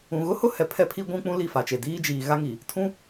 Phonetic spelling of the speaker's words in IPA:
ũ˨ɣʊ˦hʊ˦ hɛ˨pʰɛ˦pʰi˦ɡʷũ˦ k͡pũ˦li˦˨fa˨t͡ʃe˨ diː˦d͡ʒiː˨ ɣa˦ŋiː˨ | tʰũ˦

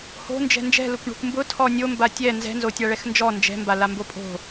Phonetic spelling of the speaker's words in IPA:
ho̤nd͡ʒɛ̤ nd͡ʒɛ̤lʊkʷ ɳo̤kʷmbʊ tʰɔnʲomba tʲɛ nzɛ̤nzo tʲaɭɛxnd͡ʒɔ nd͡ʒɛ̤mbala mbopʼo̤

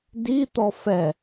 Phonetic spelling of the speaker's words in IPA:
dit̪ɔ fɛ

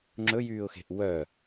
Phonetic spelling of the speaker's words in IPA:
ŋ͡ǁɵjyːʊ̯xe̤ʔ wœ

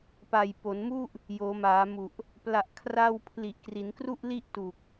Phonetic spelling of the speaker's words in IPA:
pa˨˩jpo˩˦nmu˥˩ʔ | joː˩˦maː˩˦mu˨˩ʔ | pla˨˩ʔkʰra˧wpʰli˨˩ʔ kri˩˦nkru˥˩ʔli˥˩ʔ tu˨˩k̚

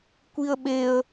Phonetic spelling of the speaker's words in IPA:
kʷiə̯ɓeə̯

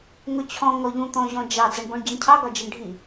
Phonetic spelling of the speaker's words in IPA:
ŋʊt͡ɕʰɔ̃ ŋɔʎũ t̪ɔ̃ʑɔ̃d͡ʒɑ d͡zʌɳbɔ̃ɳɟæɳcʰɑ ɡɒd͡ʒɜɳɖʱi

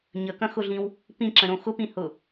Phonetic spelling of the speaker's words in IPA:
ɲəkɐ̃xʊɮĩw | pĩǁə̃ɾõ xʊpĩhʊ

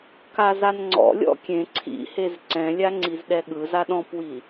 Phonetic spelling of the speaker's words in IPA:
kazanŋ͡ǀɔ̰lʲɔ̰ kʲẽ ǀʰḭhez ǀɛ̃lʲa ŋ͡ǀizɗɛɠɯza ɗɔ̃pwi

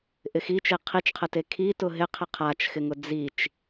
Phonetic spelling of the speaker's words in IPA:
ʔɪxi t͡ʃeqʰit͡ʃqʰəte kʰi tʊɦɪ qʰɪqʰat͡ʃxɪŋʊ d͡zit͡ʃ

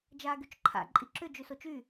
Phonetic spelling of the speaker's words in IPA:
d͡ʒaːɡyt͡ʃǃʰa̰ ǃʼiǁʏ d͡ʒʉsot͡ʃy

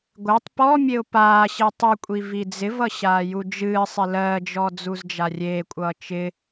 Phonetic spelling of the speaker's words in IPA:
ɡʷɪːtˤ pɔmʲeʊ̯ paː ɕitˤɨkʷʼi vid͡zɪvʌ ɕaːjud͡ʒɨːsˤɪ lɜd͡ʒɔ d͡zuzd͡ʒarʲeːkʷʼʌː t͡ʃɪ

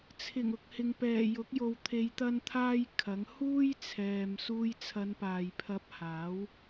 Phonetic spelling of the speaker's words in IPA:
t͡sʰɪ˨˩ŋ ʊ˨k̚hɪ˨ŋ pɛː˨˩jʊ˨˥k̚ jo˨wt̪ʰe˨˧j t̪ɐ˥nt̪ʰaː˥jkʰɐ˨˥ŋ huː˥j t͡sʰɛː˨m suː˧jt͡sʰɐ˨˧npaː˨j pʰɐ˧p̚haː˨˥w

